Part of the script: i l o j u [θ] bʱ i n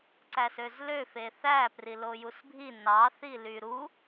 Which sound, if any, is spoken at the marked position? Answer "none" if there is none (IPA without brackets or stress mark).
s